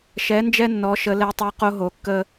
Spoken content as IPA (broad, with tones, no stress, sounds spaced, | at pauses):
ʃ ɛ˨˥ n d͡ʒ ɛ˦ nː ɔ˨˥ ʃ ə˨˥ l ɛ˦ tˤ ɤ˦ q o˦ ɦ o˨˥ kː ə˦